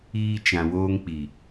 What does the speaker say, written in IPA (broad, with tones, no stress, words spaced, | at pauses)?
iː˦ t͡ʃã˨woː˦ŋk͡pi˨